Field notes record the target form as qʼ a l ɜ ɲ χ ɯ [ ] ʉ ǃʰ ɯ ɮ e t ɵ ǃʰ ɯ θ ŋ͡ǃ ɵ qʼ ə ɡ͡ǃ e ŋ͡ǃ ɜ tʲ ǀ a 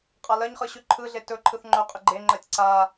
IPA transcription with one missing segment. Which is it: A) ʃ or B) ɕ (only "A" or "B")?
B